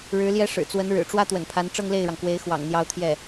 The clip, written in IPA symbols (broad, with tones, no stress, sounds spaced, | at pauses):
ɻ ɻ̩˧˥ l j ɛ˥ ʂ ɻ̩˨˩ t͡s w ə˧˥ n ɻ ɻ̩˨˩ ʈ͡ʂ w ä˥ t̪ w ə̰˨˩ n pʰ a˧˥ n ʈ͡ʂ ɤ˥˧ ŋ l e˥˩ ɪ̯ ɻ ɑ˩ ŋ k w e˧˥ ɪ̯ x w ɑ̰˨˩ ŋ n̪ j ɑ˥ ʊ̯ t̪ʰ j ɛ˥˩